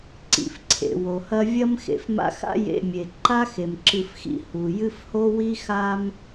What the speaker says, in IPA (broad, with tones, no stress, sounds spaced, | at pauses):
ǀ ḭ˩ f ǀʰ ḛ˩ w o˩ h ɐ˦ vʲ ɐ˦ m x ḛ˩ f m a̰˦ x a̰˥ j ḛ˨ mʲ e˩ ǃ a˥ x e˩ m ǁ ɨ˨ f x ḭ˨ h u˩ j ɨ˦ f h o˥ w i˥ x a˦ m